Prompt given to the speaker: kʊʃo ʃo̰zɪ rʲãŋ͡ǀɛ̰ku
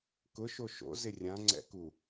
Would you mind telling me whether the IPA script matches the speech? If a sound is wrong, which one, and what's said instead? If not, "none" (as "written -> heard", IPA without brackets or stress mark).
none